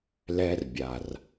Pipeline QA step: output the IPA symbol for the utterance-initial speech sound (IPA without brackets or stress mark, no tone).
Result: l